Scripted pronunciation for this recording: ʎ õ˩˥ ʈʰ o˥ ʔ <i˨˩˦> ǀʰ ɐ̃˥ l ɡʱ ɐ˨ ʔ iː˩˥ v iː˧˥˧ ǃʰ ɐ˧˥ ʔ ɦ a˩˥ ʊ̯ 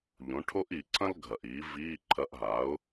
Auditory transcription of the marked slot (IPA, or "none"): i˨˩˦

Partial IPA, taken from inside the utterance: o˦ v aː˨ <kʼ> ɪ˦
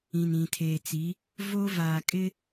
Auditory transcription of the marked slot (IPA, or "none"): kʼ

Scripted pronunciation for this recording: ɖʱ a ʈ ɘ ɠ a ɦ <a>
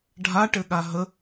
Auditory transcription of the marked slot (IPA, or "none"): ə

